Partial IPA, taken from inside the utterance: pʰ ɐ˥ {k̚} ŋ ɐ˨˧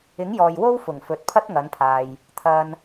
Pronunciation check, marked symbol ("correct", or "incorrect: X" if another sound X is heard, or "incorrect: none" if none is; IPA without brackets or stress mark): incorrect: t̚